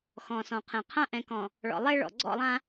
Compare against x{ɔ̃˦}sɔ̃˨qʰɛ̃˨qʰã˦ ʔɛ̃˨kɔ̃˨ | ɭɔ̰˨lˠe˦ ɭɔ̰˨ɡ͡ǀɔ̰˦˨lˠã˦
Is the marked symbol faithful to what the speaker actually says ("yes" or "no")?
no